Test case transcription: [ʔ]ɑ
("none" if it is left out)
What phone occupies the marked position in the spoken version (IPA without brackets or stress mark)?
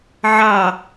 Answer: ʕ